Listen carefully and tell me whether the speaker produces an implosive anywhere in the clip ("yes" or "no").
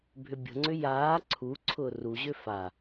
no